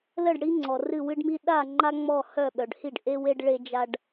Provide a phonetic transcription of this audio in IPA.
l ə˥˩ ɖ ɽ i˦ ŋ͡ǀ ɔ˩ r ɨ˥˩ w ɨ˦ ɖ m i˦ ɗ a˥˩ ŋ͡ǃ a˦ ŋ͡m ɔ˥˩ h œ˥˩ ɓ œ˩ ɖ h i˥˩ ɖ ʔ e˦ w e˦ ɖ ɭ e˦ d͡ʒ a˦ ɖ

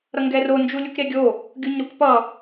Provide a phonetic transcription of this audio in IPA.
ɾ ʌ ŋ ɡ ɛ r o n d͡ʒ u lʲ u k ɾ e ɡʲ o | ɡʲ u ɲ ɾ u k p ʌ

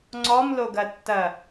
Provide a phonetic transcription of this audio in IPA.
ŋ͡ǀ ɔ m l o ɡ ɐ tː ɐ

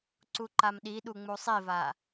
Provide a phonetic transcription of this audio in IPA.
ǀ u ǃ a m ɗ i ɗ u ŋ͡m u sˤ i v a

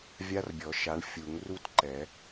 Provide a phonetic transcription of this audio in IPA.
vʲ a˦˥ r bʲ ɔ˨˩˦ ʃ a˨˦ ɳ fʲ u˨˩˦ ŋ r u˥˧ t ǃ ɛ˨˩˦

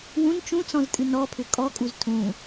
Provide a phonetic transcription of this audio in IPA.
w ũ n t͡ʃ ũ t͡s ɔ̃ z tʼ ɨ n ɔ pʰ ʏ kʼ ɔ kʼ u z tʰ ũ

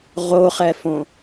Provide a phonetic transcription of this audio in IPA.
ʁ o χ ɛ f õ

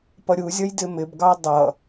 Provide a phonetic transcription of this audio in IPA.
p ʌ ɾʲ u zʲ ʌ j d ɪ m ɪ b ɡ ɑ dˤ ʌ

